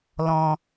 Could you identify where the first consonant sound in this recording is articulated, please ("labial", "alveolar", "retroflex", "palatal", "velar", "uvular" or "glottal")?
alveolar